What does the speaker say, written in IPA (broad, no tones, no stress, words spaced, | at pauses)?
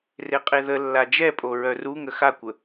reqʼeðəlːa d͡ʒɛpʼo ɹœruŋə xakʷə